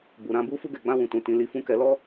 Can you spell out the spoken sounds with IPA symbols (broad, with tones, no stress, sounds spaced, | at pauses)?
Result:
b u˨ ɾ ã˨ b u˧ f u˧ ɡ ɛ˨ ɡ͡b ã˧ w ũ˨ t ũ˨ t ĩ˨ l i˨˦ f ũ˧ k ɛ˨ l ɔ˧